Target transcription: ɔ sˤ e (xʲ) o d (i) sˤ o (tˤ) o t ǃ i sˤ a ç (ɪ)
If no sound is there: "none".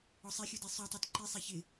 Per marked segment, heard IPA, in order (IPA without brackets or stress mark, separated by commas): xʲ, i, tˤ, ɪ